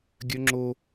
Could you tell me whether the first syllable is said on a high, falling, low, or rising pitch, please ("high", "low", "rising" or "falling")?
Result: high